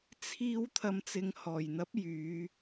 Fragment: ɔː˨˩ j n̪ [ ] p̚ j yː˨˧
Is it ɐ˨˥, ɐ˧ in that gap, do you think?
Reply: ɐ˨˥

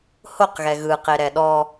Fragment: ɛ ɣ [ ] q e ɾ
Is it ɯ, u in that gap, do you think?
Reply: ɯ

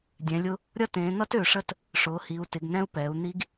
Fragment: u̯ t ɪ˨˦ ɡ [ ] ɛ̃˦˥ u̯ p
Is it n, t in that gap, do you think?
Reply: n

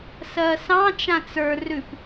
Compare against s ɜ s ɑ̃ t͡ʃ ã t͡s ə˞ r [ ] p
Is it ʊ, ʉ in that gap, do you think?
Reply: ʉ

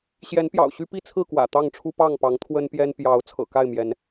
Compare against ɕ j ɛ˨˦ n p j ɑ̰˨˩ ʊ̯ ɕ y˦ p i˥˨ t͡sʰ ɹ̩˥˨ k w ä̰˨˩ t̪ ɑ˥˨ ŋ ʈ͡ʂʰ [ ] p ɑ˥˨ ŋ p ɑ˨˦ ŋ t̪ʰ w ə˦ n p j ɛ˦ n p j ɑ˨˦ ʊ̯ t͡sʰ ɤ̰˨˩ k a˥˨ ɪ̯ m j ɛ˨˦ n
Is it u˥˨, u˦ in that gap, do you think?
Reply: u˦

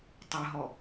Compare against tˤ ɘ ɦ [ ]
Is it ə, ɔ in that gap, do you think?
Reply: ɔ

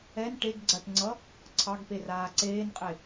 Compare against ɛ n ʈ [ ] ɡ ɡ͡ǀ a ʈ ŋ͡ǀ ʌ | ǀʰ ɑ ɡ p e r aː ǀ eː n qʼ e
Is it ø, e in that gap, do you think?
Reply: e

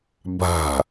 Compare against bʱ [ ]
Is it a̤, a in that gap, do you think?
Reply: a̤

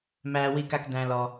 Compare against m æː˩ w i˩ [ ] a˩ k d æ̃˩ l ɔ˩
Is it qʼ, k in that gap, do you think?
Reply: k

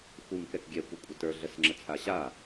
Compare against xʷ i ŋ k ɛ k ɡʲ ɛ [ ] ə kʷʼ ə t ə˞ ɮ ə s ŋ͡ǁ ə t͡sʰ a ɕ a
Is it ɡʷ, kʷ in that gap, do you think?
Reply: kʷ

